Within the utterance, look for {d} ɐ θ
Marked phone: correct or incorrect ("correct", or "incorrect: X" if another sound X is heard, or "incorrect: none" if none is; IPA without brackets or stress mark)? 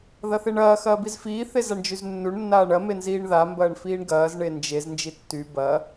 incorrect: ð